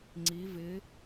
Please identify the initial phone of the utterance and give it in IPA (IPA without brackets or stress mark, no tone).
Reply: ŋ͡ǀ